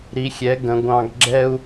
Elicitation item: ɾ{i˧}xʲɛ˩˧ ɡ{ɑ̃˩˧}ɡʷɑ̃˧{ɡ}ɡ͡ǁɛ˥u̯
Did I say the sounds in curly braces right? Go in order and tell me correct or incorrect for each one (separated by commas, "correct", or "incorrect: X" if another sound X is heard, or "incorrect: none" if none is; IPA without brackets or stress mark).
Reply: incorrect: i˩˧, incorrect: ə̃˩˧, correct